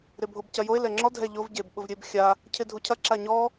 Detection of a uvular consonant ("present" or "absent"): absent